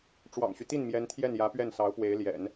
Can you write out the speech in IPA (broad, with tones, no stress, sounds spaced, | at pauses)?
ʈ͡ʂ w ɑ̰˨˩ ŋ ɕ y˦ t̪ i˥˩ n m j ɛ˧˥ n t̪ʰ j ɛ˥˩ n j ä˧˥ p ɥ ɛ˥˩ n s ɑ˧˥ ʊ̯ p w e˧˥ ɪ̯ l j ɛ̰˨˩˦ n